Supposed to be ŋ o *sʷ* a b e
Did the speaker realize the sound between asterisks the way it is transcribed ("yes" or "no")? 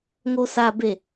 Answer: no